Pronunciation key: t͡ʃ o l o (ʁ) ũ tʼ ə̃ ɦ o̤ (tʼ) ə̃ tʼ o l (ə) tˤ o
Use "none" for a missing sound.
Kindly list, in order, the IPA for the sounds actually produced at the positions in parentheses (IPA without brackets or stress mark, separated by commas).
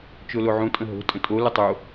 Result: ʕ, tʼ, ə